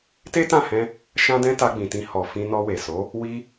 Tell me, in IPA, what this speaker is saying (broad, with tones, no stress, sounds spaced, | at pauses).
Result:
t e˦ t ã˦˨ h ɛ̃˧ | ʃ ã˦ d ɛ̃˦ t a˧ ɡ͡b ĩ˨ t ĩ˧ h ɔ˨ f ĩ˧ n ɔ˧ w e˨ s o˨˦ | w i˧